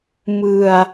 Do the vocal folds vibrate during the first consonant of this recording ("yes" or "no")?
yes